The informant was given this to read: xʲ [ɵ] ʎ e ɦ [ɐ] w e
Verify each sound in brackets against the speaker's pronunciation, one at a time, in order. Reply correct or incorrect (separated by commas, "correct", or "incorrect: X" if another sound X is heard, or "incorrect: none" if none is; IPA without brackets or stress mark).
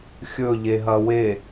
correct, correct